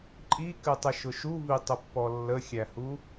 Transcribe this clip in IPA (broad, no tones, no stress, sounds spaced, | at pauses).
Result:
ǃʼ i k ɨ tˤ ə ʃ ʊ ʃ u v i tˤ ʊ pː ɔ lː ə xʲ æ h u